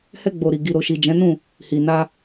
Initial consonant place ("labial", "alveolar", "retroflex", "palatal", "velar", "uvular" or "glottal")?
glottal